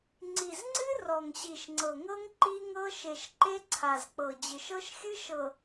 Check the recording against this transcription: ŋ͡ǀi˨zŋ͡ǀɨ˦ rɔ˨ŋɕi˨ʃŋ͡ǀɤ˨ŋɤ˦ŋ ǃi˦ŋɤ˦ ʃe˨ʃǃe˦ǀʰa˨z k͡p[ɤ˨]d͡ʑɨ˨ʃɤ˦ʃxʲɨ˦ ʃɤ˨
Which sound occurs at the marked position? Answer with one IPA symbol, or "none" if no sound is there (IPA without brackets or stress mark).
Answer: ɤ˨